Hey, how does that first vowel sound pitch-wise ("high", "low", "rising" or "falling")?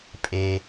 low